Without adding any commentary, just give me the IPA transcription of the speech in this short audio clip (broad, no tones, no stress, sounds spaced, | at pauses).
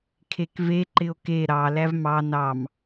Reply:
kʰ e k v e ǃ ɪ o̯ k e ɾ ɑ l æ v m ɑ n ɑ m